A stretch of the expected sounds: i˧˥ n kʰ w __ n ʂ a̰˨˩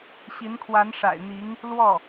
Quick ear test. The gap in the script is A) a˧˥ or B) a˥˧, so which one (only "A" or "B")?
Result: A